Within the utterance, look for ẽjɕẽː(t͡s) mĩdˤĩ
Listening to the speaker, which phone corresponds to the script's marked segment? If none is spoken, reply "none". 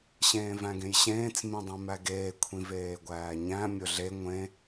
t͡s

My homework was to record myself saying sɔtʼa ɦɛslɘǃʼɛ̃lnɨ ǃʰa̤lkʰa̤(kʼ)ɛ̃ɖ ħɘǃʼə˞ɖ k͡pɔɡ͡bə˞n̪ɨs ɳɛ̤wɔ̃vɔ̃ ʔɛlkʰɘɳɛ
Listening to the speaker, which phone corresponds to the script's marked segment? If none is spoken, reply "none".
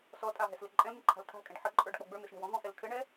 kʼ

